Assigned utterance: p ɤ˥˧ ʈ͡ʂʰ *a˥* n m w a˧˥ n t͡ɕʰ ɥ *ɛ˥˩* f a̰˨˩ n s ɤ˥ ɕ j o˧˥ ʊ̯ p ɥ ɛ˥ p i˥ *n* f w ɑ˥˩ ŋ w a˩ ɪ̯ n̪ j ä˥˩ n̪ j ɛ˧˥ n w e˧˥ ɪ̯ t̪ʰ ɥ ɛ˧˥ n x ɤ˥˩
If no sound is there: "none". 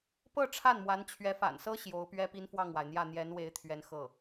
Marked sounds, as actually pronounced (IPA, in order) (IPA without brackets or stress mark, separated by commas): a˥˩, ɛ˧˥, n